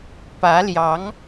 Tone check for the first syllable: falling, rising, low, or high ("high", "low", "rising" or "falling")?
rising